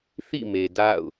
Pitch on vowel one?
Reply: falling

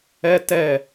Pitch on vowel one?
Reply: high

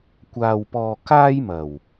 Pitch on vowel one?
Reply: low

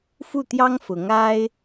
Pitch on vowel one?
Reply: falling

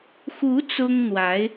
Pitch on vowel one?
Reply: rising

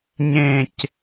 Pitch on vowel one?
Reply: falling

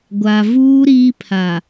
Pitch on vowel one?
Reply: low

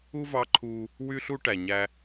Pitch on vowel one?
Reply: high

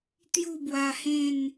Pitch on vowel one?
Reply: falling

